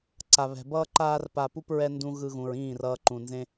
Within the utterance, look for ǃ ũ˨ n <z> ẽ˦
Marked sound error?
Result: no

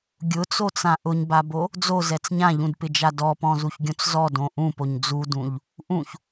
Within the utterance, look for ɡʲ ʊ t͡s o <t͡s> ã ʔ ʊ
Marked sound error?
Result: no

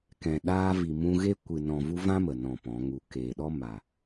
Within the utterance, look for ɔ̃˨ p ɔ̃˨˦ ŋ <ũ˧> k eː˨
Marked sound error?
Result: yes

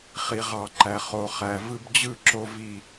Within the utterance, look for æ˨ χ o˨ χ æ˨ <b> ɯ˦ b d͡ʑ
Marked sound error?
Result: yes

